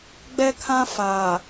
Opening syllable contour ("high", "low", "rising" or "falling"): high